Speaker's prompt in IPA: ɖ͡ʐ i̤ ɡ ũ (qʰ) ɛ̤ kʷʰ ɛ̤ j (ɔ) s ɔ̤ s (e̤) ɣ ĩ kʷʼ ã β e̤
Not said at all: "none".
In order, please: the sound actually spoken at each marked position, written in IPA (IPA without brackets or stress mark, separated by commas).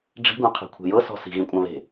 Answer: qʰ, ɤ, i̤